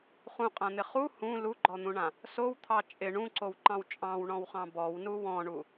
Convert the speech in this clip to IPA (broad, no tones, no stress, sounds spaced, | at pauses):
χ ũ qʼ ã n̪ ɪ χ u h ũ l u ɡ͡ǃ ɔ n̪ ũ ɳ ã | s o w t̪ʰ ɑ t͡ʃʼ ɪ ɳ ũ ǀ o w ǃ ɑ̃ w t͡ʃʼ ɑ̃ w ɳ ɔ̃ w χ ɑ̃ b ɔ w n u w ɔ̃ ɳ u